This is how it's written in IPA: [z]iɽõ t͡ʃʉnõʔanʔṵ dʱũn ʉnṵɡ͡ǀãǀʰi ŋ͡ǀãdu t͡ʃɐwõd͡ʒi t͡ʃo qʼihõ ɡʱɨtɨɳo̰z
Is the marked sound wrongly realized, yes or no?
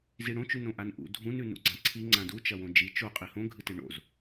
no